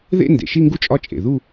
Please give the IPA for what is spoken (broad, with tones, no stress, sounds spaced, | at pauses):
ð ḛ˥˧ n d ḛ˨˩ ʃ i˥˧ ŋ ɡ u˦˥ t͡ʃʼ ɒ˥˧ t͡ʃʼ ḛ˨˩ ð u˥˧